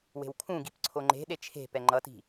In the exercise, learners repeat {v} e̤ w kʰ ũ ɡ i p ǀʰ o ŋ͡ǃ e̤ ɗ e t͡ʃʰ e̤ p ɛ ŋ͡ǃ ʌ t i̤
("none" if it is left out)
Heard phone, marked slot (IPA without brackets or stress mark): w